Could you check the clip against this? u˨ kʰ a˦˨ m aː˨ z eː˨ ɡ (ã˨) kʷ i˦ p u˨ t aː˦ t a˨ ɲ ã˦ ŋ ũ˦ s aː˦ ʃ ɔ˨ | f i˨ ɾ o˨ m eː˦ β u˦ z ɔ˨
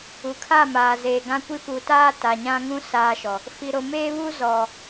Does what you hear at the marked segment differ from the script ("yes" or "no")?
yes